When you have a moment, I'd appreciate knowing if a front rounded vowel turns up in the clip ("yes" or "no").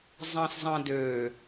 yes